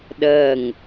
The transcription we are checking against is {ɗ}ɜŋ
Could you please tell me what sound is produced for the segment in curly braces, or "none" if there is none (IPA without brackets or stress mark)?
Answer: ɗ